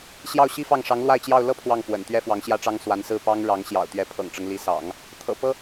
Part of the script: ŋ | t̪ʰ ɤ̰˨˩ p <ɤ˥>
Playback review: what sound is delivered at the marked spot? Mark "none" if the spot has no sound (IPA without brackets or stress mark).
ɤ˥